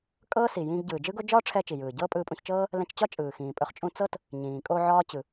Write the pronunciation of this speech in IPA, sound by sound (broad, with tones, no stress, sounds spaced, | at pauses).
kʼ ɤː˥ s i˩ j ĩː˧ ɡ ɟ ɯː˩ d͡ʒ ɯ˥ ɡ o˥ d͡ʒ ɒː˥ ʈ͡ʂʰ ɛ˧ t͡ʃ i˩ j ɯː˩ ɟ ɤː˥ pʼ ɯː˧ pʼ ũ˧ ç t͡ʃ ɤː˥ | l ɛ̃˧ t͡ʃ t͡ɕ ɒ˥ t͡ʃʼ ɯː˩ x ĩː˩ pʼ ɵ˧ χ t͡ʃʼ ũ˧ t͡s ɤ˥ t | ɲ ĩː˩ kʼ o˧ ʕ ɒː˥ t͡ɕ ɯ˩